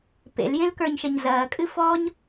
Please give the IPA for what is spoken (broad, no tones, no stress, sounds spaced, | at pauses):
p ḛ l j ẽ l k ə˞ ɲ ʃ ɐ ɲ z ɐː kʼ ɨ f ɔ ɲ